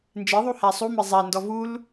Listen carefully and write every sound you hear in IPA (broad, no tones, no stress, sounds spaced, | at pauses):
n d͡ʒ e ðˤ u h æ sˤ u m e zˤ æ n d ɔ v u l